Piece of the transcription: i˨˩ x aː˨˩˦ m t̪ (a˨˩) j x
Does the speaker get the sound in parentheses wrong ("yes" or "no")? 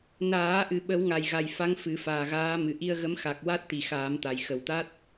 no